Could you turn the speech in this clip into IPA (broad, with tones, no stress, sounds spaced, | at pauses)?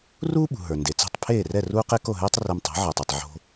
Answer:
r uː˥ ɓ ṳ˩ ɦ ə˞˩ n d e˩ t͡s ɛ̤˥˩ tˤ pʰ eː˥˩ r ɛ˥˩ r uː˥ q e˥ k o˥˩ ɦ ɛː˥ tˤ r ɛ˧ m tˤ æ̤˩˥ ʕ ə˞˩ tˤ o˩ tˤ ʕ o̤˧